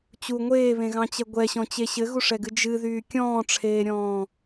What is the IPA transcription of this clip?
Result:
t͡ɕ u ŋʷ eː β ẽ ɣ ɑ̃ t͡ɕ ɛ ɡʷ ɛ ɕ ɔ̃ t͡ɕ e ɕ ɘ ɣ u ʂ ɛ ɡ ɨ d͡ʒ ɨ ð yː kʲ ɔ̃ː ʈ͡ʂʰ eː ɾʲ ɔ̃ː

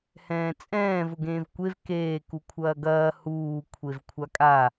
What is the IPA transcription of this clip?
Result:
h ɛ̃ː t͡sʼ ɛ̃ː v ʊ ɡ ẽː v kʷ e v k eː k u kʷʰ ɐː ɡ ɐː h uː kʷʰ e v kʷʰ a kʼ a

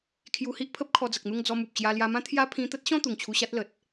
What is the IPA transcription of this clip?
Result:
kʰ j u˧ h i˦ ʔ pʰ ə˦ p̚ kʰ ɔ˧ d͡z ə˨ k̚ n̪ u˥˧ ŋ d͡z ɔ˧ m u˨ p̚ t͡ɕ j a˧ l j a˧ m ã˦ t̪ʰ j a˦ pʰ ĩ˧ t̪ ə˦ t̚ ɕ ɔ̃˥˧ t̪ u˨˩ ŋ t͡ɕʰ u˧ ɕ a˦ t̚ l ə˨ t̚

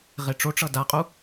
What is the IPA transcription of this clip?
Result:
ʁ e ʈ͡ʂ o ʈ͡ʂ ʌ d a qʼ u

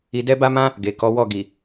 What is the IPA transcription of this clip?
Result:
i˧ d ɛ˦ b a˦ m ã˦ | ɡ e˨ k ɔ˨˦ w ɔ˦˨ ɡ i˨

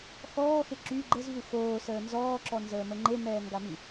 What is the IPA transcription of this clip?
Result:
x ɔː x e ǁ y ɡ͡ǃ ə z v u x oː s əː n z ɔː ǁ ɔ n z əː m ə ŋ͡ǃ e m ɛː ŋ ɡ a m i

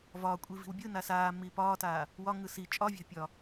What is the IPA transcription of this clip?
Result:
v ɒː kʷʼ i v i̤ w bʲ ɯ n a s aː mː iː p ɒː t aː | w ɒ ŋ ɯ s i t͡ʃʼ ɒ vʲ a̤ pʲ ɒ

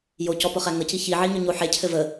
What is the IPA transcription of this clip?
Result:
j o c ɔ p ʊ χ æ ŋ ə c i ç i ʕ i ɲ ʊ ɲ o ħ e cʰ ɘ v ə

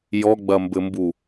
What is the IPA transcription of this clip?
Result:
j ɔ ɡ͡b ɐ m b ɘ m b u

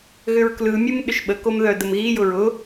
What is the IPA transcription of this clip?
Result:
ɣ ʏ ɹ k l ɯ mʲ ɯ m ɗ ʏ ʃ ɓ ə k o m ð œ d ə m ɣ i j ʊ ɹ ʊ

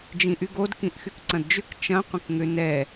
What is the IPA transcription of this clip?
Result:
d͡ʒ ĩ ʔ y ɡ o d k ĩ ʔ x y k ǀ ɐ̃ d d͡ʒ ʏ k t͡ʃ ɐ̃ qʷ ə̃ k ŋ ʏ n ɛ

